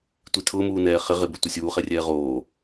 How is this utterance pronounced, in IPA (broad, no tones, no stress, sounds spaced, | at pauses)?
tʷ i tʰ ʊː m uː n ɛː χ ɪ ʁ ɪ b e tʷ ɪ sʲ uː χ ɛ rʲ ɛː ʁ oː